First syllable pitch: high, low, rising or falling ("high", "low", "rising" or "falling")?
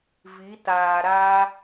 rising